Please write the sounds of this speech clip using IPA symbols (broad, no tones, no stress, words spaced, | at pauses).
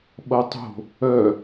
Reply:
ɓʌtˤo̤ | œ